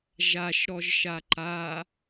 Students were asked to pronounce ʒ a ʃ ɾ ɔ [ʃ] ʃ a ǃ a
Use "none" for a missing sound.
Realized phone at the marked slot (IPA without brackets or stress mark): ʒ